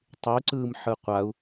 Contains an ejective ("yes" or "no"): no